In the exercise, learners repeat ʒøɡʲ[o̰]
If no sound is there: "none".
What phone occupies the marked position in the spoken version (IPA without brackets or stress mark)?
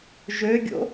o̰